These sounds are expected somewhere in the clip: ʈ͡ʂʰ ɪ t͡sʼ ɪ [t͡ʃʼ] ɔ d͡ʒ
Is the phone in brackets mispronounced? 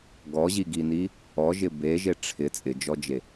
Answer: yes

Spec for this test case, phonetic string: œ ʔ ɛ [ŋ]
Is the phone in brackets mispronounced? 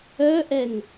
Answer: no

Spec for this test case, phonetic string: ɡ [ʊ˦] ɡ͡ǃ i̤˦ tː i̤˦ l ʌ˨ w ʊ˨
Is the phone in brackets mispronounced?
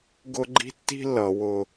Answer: no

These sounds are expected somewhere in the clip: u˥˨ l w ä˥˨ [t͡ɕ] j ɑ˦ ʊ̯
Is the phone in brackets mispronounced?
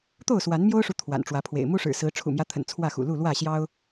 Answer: yes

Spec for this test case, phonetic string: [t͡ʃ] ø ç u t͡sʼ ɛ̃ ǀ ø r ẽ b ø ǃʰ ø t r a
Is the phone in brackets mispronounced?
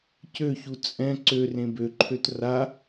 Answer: yes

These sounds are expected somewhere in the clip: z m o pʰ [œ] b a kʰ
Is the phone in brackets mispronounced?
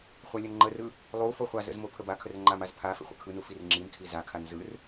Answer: yes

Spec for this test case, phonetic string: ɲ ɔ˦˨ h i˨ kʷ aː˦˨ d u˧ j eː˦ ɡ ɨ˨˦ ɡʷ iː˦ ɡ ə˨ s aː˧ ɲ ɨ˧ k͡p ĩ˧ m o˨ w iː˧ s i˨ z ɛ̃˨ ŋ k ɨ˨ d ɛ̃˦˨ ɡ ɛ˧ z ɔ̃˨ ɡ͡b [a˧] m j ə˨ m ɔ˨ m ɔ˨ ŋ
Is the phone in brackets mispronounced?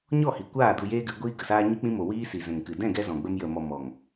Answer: yes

